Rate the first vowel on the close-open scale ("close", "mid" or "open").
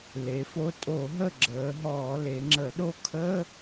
mid